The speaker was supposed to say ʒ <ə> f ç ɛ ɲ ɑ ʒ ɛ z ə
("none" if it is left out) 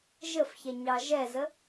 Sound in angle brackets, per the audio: ə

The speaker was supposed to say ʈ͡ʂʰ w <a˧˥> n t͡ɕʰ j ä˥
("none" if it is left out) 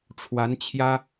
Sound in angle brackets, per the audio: a˧˥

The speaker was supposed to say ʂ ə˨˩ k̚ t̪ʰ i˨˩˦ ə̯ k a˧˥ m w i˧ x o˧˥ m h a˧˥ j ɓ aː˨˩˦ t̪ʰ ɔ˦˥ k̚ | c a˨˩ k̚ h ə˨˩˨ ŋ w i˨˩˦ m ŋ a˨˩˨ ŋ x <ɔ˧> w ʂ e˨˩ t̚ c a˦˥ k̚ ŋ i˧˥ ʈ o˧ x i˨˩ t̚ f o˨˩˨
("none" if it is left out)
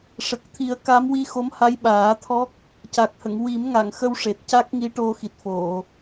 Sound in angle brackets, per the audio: ə˧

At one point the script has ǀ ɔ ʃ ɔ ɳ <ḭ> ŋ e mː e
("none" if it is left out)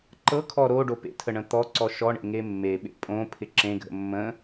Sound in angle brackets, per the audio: ḛ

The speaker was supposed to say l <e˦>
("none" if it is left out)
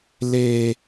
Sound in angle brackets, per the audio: eː˦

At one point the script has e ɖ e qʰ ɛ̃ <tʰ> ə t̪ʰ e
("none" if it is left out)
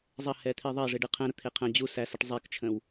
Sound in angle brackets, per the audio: ɾ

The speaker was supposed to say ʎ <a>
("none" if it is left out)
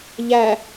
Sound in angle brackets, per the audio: æ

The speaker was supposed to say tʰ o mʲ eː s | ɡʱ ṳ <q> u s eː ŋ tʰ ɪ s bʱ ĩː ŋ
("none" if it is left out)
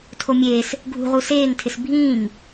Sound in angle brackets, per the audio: ʁ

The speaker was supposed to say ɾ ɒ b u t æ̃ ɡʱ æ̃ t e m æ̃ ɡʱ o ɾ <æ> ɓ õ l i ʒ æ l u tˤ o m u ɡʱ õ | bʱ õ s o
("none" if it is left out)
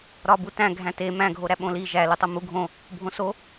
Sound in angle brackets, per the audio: æ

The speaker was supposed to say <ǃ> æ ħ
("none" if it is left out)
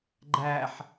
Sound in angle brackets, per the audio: ɡ͡ǃ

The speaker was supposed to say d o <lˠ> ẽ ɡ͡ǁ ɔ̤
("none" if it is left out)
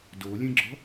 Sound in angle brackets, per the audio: lʲ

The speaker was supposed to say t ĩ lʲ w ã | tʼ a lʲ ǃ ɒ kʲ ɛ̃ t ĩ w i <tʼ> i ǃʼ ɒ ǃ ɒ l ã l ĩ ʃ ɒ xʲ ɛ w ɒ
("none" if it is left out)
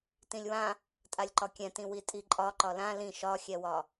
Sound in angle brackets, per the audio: tʼ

